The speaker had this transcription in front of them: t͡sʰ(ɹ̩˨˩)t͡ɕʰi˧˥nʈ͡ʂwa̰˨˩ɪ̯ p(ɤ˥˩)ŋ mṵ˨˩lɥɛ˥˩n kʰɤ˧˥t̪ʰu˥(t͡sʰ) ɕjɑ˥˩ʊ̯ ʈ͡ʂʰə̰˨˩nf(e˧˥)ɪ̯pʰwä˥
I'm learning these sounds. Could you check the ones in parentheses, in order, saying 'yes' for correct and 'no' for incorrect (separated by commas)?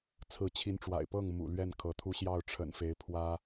no, yes, no, yes